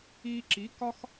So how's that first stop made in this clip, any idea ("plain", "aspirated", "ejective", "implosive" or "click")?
click